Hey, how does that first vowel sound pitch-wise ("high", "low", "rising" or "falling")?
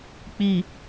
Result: low